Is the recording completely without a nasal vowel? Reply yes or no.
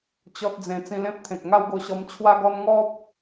no